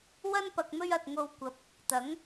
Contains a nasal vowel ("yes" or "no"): no